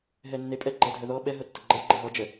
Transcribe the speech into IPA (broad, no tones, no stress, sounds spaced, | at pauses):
ɦ ɛ nː e pʼ ɛ ɡ͡ǃ ɛ dʱ œ ð ɔ ɓ ɛ ɦ ɤ tː ə ɡ͡ǃ ɛ ɡ͡ǃ ɘ ɦ ɔ d͡ʒ ə